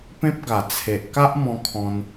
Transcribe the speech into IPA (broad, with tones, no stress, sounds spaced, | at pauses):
p ẽ˦ p̚ ɡ a˨˩ t͡sʰ e˨ ʔ k a˦ ʔ m ɔ̃˧ kʰ ɔ̃˧ n